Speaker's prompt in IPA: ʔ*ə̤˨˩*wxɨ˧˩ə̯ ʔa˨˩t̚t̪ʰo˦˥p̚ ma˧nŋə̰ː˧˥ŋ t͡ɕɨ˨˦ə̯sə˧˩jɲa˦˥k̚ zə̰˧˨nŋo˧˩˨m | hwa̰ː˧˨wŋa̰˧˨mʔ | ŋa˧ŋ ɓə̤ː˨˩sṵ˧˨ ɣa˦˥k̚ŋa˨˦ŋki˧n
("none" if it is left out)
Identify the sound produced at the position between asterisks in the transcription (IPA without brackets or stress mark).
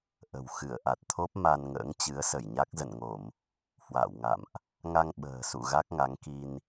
ə̤˨˩